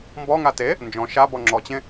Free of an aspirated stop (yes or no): yes